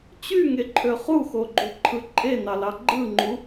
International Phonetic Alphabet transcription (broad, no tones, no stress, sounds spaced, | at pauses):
t͡ɕ y ŋ e ǃʰ ø χ u x o ɡ͡ǃ u ǃʰ ɯ ǃʼ e n ɑ l ɑ ɡ͡ǃ ɯ ŋ͡ǃ u